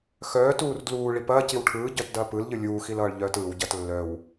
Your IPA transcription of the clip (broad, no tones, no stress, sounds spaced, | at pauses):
x œː t uː r d l uː ɭ i p ɐː c i w ʈʰ ɯː ɟ œ t d ɐː p ɯ l ʎ ɯ lʲ uː x i l ʌː ɭ ʎ œː t ɯː w ɟ ɐː t lː œ w